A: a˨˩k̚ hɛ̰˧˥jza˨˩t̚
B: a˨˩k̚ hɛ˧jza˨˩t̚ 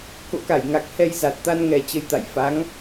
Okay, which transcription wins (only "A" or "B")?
B